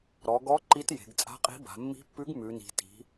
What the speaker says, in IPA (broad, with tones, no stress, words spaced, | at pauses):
ɾɔ˩˧ɡɔ˧˥ ǃi˧˥t je̤˩˧ɡt͡sʼa̤˧˥qʼi̤˧˥ba̤˩˧ mːi̤˧˥pːʉ˧˥ɡ mʉ˩˧ni̤˩˧ ti̤˩˧